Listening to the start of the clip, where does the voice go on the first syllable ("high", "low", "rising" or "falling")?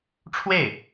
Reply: falling